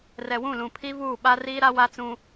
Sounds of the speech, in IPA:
r ɛ˨ w ũ˦˨ l ũ˨ pʰ i˦ v uː˦˨ ɓ a˦ r iː˦ ɾ a˦ w a˦ t͡s ũ˦

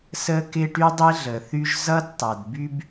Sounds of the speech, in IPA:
s ə˧ k ɪ˧ ʈ y˦ dˤ e˦ ɮ ə˨ θ y˦ ʒ z ʌ˦ d tˤ a˨ d b y˦ b

